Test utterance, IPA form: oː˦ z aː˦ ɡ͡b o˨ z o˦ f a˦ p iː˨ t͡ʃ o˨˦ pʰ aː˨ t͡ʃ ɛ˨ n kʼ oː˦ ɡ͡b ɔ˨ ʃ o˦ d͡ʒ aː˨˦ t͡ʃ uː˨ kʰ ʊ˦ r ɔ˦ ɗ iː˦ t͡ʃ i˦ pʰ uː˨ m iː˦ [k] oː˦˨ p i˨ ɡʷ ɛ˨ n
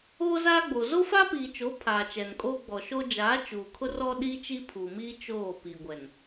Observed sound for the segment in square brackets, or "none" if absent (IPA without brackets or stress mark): t͡ʃ